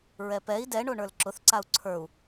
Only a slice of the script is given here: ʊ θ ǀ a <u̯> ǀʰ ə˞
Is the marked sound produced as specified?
yes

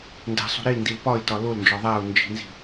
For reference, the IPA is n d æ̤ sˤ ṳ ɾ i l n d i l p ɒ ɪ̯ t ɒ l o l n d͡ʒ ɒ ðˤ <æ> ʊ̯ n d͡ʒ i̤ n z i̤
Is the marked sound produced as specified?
yes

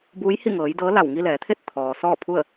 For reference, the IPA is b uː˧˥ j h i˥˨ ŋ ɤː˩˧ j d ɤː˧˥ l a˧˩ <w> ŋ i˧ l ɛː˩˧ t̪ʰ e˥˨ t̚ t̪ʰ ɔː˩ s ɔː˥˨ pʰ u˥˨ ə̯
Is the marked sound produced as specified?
yes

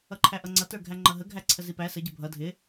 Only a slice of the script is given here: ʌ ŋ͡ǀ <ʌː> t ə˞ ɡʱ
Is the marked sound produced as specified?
no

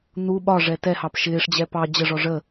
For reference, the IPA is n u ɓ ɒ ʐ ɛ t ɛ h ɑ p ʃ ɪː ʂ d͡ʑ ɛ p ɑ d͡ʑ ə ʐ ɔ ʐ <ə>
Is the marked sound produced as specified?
yes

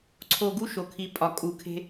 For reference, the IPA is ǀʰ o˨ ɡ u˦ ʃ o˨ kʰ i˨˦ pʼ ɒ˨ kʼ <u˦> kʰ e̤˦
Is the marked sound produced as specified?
no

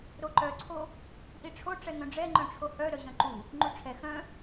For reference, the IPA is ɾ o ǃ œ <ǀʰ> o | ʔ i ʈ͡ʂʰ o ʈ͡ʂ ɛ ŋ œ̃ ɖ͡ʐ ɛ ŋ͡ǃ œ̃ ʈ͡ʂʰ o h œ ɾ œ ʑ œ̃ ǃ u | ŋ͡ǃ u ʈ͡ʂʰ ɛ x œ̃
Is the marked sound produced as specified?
yes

